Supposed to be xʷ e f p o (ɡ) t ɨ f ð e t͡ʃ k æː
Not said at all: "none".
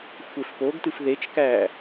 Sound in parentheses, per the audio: ɡ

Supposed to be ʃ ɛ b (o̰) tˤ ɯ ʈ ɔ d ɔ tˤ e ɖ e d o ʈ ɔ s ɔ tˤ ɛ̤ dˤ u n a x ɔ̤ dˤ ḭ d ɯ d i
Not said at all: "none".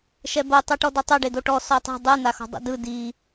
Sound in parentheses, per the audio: o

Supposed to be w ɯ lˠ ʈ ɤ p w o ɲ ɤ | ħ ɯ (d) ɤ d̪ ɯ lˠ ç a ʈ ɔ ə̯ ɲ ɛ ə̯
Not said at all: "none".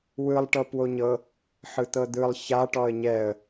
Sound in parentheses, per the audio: t̪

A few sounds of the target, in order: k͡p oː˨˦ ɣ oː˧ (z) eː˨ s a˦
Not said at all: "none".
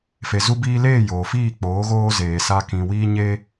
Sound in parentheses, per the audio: z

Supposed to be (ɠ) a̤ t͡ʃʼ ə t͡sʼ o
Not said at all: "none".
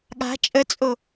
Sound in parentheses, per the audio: ɠ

